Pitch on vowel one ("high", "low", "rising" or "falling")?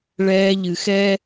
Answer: high